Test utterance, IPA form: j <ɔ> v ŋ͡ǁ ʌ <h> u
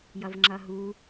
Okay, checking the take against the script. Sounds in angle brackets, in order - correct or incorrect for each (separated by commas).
incorrect, incorrect